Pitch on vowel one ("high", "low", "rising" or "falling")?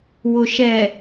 low